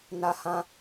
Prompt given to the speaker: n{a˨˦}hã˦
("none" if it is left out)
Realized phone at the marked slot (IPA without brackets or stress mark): a˦